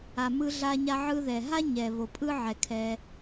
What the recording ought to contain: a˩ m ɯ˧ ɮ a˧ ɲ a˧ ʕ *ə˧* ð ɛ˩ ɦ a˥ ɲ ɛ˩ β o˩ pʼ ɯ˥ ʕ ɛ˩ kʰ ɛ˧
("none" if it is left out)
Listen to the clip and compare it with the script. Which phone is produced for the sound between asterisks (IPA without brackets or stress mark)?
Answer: ɯ˧